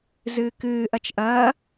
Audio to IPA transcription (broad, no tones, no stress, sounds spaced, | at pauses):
z ɨː k ɨː ʔ ɐ t͡ʃ ʔ ɐ